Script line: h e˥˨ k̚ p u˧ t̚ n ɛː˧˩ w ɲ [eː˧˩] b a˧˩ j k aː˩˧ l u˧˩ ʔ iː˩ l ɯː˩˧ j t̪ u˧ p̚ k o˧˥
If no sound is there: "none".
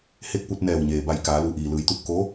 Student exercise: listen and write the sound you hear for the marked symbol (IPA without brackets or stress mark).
eː˩